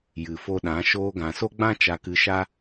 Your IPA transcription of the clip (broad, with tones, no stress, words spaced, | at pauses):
jɨ˨fo˧ɗã˨˦ ʃoː˧ɡã˨so˦ɡ͡bã˦ t͡ʃa˨kɨ˨ʃa˧